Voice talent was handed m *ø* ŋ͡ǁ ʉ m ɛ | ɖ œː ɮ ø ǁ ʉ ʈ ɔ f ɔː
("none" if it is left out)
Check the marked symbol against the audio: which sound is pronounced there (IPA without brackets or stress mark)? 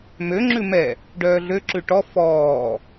ø